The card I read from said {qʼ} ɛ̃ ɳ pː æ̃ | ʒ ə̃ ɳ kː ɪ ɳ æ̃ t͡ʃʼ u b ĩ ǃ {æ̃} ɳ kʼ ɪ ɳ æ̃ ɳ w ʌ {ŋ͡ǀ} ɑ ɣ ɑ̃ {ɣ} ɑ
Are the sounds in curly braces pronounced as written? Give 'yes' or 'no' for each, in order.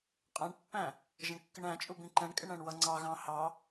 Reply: yes, no, yes, no

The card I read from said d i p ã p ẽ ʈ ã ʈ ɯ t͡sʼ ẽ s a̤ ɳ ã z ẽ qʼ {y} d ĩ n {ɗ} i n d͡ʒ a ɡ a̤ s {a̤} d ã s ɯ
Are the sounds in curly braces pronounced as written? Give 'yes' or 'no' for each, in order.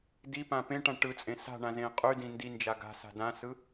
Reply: yes, no, yes

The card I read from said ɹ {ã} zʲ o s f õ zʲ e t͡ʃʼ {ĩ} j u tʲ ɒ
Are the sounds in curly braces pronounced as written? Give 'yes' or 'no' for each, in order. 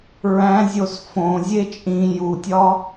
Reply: no, yes

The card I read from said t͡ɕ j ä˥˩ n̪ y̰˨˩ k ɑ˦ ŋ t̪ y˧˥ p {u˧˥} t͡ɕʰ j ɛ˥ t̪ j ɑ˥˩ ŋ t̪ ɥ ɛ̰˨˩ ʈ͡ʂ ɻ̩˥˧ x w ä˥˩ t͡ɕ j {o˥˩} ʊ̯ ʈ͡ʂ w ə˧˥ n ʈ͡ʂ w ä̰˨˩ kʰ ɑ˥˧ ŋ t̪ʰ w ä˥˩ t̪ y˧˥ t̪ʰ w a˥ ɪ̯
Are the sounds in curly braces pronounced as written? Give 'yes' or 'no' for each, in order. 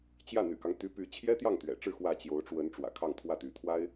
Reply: no, no

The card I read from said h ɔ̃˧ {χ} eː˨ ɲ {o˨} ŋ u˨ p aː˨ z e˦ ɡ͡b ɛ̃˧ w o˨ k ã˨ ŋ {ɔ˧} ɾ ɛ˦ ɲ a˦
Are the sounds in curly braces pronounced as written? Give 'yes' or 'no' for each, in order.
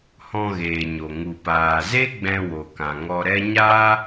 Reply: no, yes, yes

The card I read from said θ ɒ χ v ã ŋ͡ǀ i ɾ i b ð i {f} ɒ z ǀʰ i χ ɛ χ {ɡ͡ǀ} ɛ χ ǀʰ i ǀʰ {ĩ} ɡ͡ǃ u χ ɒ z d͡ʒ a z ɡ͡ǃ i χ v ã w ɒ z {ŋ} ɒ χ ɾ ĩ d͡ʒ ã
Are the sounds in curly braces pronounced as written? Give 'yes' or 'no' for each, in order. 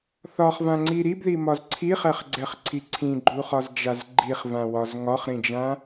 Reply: no, yes, yes, yes

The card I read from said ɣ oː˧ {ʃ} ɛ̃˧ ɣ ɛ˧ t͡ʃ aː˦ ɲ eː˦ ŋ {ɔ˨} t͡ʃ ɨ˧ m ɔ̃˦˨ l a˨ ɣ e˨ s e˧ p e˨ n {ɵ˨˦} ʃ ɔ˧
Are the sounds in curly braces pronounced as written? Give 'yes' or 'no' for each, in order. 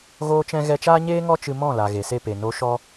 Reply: no, no, no

